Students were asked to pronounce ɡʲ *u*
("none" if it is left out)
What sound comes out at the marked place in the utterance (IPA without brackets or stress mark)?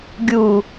u